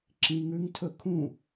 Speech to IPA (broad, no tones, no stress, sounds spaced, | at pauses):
ǁ ĩ ŋ ʉ ŋ tʰ ɵ kʰ ũ